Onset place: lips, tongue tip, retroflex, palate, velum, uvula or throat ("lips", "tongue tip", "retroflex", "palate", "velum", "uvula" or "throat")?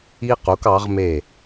uvula